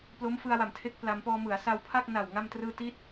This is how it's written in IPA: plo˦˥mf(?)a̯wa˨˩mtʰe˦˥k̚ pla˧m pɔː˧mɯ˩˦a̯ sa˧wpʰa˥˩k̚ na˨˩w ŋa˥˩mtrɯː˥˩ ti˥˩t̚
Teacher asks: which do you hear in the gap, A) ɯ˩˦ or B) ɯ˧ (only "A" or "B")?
B